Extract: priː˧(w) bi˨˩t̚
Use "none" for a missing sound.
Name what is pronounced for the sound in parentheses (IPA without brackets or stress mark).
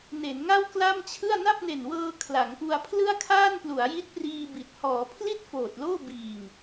none